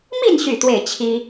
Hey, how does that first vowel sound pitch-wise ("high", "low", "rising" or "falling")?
falling